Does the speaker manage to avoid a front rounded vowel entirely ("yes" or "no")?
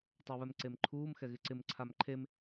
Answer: yes